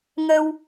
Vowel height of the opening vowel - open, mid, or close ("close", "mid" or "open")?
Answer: mid